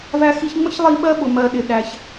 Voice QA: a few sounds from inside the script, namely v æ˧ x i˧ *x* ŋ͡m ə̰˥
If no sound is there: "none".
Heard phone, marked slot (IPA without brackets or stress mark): ç